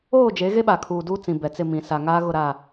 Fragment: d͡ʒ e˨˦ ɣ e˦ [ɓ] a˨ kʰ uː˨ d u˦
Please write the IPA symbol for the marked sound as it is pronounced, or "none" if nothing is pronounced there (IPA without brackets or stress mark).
ɓ